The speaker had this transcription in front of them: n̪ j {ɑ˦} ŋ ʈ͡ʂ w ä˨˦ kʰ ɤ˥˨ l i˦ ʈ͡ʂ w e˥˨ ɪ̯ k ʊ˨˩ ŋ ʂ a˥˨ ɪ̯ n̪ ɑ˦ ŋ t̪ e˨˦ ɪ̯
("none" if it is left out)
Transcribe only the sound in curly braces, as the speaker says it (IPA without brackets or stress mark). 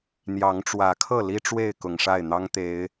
ɑ˨˦